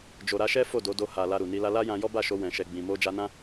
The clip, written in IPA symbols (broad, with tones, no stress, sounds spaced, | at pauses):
d͡ʒ o˨ ɾ a˧ ʃ ɛ˦ f o˦˨ d o˨˦ d o˧ h a˨ l a˧ ɾ u˨ n i˧ l a˦ l a˦ j ã˧ j ɔ˦ b a˦˨ ʃ o˧ w ɛ̃˨ ʃ ɛ˨ ɡ͡b ĩ˨ m o˧ d͡ʒ a˧ n ã˦